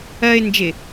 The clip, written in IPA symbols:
ɜ ɪ̯ n d͡ʒ ɪ

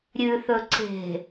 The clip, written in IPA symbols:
ɾʲ ʉ θ ɵ ǀ e̤

